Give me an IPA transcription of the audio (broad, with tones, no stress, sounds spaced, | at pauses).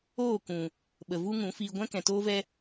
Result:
oː˦˨ k ũ˨ | ɓ ə˨ v u˦ ŋ ũ˨˦ f iː˧ ɡʷ ɛ̃˦ k ɛ̃˨ t oː˦ v ɛ˦